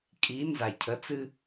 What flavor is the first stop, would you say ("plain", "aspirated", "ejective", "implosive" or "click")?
ejective